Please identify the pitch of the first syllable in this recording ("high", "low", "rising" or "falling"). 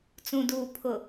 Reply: low